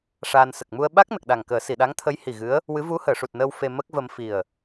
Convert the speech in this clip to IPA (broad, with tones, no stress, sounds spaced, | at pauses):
ʂ aː˧ n s ə˨˩ k̚ m u˧ ə̯ ɓ a˦˥ k̚ n ə˨˩ k̚ ɗ a˨˩ ŋ k əː˨˩˦ s i˨˩˨ ɗ a˧˥ ŋ t̪ʰ ə˧˥ j h i˨˩ ɣ ɨ˧˥ ə̯ | w ɨ˧˥ v u˧˥ h əː˨˩˨ ʂ u˨˩ t̚ n əː˧ w f e˧ m ə˦˥ k̚ v ə˧ m f i˨˩ ə̯